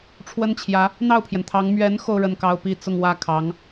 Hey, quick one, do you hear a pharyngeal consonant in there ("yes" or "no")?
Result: no